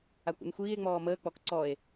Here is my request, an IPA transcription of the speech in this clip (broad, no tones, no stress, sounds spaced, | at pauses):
a kʷ ṵ n xʷ iː e̯ ŋ͡m ɔː m əː k͡p ɔ k ǀ ɔ e̯